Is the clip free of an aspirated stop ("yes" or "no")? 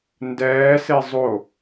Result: yes